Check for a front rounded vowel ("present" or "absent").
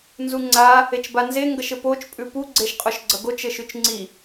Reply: absent